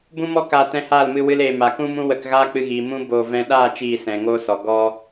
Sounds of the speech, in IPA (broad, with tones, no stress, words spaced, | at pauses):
bũ˦mɔ˦ kaː˧tɛ̃˧haː˦˨lmɨ˧ wɨ˦leː˧ ma˨kũ˦mũ˦ wə˧kɣaː˦k͡pɨ˧ɣiː˨ mũ˦ boː˧vɛ̃˦ ɗaː˦˨ t͡ʃiː˦˨sɛ̃˨ŋoː˦sɔ˨ ɡɔ˦